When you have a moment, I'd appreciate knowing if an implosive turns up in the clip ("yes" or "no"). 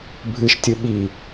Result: yes